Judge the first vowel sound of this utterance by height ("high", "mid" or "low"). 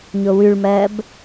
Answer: mid